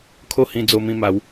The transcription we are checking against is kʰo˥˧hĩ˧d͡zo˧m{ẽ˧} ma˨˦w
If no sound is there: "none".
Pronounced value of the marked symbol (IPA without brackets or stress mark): ĩ˧